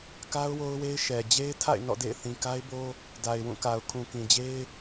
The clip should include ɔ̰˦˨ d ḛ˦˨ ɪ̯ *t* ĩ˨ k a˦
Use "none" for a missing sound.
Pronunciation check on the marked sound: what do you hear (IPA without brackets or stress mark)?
θ